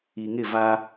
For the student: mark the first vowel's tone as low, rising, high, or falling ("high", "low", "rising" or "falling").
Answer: low